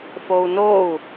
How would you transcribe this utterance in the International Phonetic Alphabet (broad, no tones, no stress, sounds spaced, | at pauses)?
f o u̯ n o u̯